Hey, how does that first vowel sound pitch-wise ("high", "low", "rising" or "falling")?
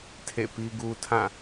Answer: falling